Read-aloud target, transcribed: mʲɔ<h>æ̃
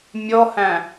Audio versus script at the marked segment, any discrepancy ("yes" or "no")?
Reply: no